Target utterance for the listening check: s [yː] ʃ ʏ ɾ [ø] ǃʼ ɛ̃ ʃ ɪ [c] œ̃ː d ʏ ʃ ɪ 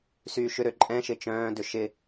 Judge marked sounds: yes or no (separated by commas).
yes, yes, no